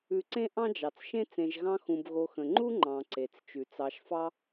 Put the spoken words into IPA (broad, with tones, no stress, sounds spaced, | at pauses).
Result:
ʉ˨ ǀ ẽ˥ ʔ ɑ̃˥ d͡ʒ ɑ˩ t͡s ʃ ẽ˥ t͡s ẽ˨ ʒ ɣ ɑ̃˦ x ũ˨ b ɣ o˨ x ə̃˩ ŋ͡ǃ u˥ ŋ͡ǃ ɑ̃˨ ǀ e˩ t͡s t͡ʃ ʉ˩ t͡s ɑ˨ ʃ f ɑ˦